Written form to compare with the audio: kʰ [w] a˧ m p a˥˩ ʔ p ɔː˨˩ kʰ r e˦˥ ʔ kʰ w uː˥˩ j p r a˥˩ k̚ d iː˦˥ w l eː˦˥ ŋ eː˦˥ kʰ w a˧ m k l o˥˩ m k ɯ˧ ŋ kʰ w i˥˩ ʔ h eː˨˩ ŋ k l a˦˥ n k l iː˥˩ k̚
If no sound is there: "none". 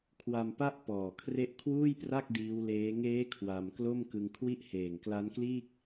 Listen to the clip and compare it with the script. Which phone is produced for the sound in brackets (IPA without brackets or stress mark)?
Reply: w